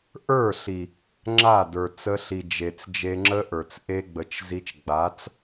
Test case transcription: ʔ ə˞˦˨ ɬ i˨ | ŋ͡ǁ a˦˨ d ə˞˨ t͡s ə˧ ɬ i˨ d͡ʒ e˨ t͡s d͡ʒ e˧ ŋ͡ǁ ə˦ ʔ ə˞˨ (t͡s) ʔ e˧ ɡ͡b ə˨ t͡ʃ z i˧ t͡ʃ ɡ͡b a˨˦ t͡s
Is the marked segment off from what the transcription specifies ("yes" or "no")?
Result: no